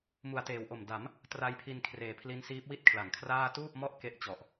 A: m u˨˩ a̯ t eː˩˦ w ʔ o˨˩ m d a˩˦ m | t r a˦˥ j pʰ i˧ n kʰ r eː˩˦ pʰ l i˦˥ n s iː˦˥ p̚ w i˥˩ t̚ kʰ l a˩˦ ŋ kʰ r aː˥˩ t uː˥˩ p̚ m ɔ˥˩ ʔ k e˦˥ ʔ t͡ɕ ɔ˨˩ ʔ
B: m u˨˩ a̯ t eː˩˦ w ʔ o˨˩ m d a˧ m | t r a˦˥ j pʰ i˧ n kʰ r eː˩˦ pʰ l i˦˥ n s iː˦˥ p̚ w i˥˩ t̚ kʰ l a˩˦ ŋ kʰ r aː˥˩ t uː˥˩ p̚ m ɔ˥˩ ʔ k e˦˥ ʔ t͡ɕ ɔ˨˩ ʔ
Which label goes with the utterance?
A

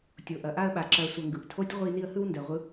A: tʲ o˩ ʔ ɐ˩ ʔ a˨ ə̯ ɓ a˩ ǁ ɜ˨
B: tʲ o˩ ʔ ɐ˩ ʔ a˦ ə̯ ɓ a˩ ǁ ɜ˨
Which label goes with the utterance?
B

